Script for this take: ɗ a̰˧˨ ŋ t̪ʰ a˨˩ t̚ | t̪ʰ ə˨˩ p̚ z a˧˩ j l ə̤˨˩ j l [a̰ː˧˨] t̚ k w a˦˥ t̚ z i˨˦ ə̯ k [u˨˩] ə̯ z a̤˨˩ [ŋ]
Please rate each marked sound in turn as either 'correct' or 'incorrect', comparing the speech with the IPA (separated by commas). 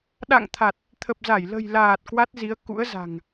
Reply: incorrect, incorrect, correct